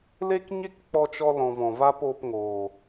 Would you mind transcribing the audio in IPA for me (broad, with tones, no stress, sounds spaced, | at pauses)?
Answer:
l e˦ k ɲ e˦ k k͡p ɔ˧ t͡ʃ ɔ˧ l ɔ̃˨ v ɔ̃˨ v a˦ p oː˧ p ŋ oː˨